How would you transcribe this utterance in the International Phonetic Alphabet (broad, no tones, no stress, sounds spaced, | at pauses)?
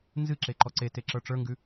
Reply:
n z ɨ ǁ e ǃ ɔ ǀ e t e ǁ ə˞ ʈ͡ʂ ə˞ ŋ ɡ ʉ